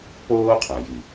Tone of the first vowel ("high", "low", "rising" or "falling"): high